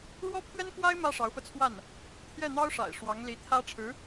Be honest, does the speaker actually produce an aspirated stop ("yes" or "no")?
yes